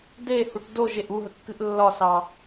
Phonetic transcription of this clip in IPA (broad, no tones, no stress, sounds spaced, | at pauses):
d e h u ʈ d o ʒ e ʔ u ɦ ə kː ɨ ʔ lː ɒ s ɑ